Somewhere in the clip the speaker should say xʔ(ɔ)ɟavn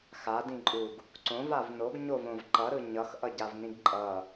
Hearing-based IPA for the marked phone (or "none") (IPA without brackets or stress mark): ʌ